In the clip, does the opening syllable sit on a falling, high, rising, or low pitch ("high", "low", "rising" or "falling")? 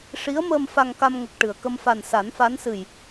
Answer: rising